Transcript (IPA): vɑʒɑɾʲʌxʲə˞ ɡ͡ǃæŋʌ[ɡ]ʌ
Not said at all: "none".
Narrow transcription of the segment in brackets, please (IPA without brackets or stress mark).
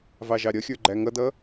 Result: d